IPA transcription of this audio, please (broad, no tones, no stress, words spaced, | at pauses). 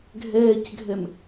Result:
ɡʱɛːcɡʱɛm